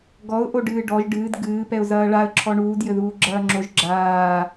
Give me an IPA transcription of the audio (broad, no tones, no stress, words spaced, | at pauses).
ɡɔʊ̯ʔoɖɨː ɖɔʒ ɖɨːd ɡɨːpɛʊ̯zɐː ɭaə̯ ǁʰɔɳuːd jɘðuːɡ͡ǁɐːŋ͡ǁoʒ ɡ͡ǁaː